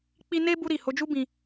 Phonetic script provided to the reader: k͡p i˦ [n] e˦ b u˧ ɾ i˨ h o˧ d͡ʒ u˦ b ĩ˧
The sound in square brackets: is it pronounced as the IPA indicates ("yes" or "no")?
yes